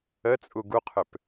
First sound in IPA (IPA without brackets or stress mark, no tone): ə